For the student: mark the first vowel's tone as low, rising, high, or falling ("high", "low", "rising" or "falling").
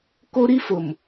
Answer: high